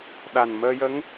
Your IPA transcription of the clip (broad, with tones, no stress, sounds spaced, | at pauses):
ɗ a˨˩ n m əː˧ j ə˧˥ ŋ